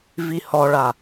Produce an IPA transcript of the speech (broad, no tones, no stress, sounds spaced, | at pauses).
v i h ɔ ɭ a